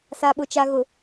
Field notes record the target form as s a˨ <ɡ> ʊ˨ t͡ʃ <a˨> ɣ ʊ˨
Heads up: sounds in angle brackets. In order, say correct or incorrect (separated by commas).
incorrect, correct